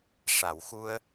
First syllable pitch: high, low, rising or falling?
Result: low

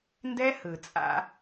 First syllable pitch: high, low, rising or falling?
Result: high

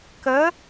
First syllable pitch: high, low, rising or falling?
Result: rising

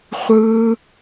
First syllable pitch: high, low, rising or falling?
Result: high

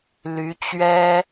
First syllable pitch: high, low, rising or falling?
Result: rising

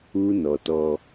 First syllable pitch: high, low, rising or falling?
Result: high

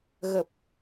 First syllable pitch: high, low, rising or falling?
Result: low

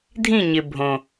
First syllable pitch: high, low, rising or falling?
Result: falling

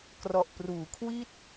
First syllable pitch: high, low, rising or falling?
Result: low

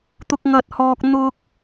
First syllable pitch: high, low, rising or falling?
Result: high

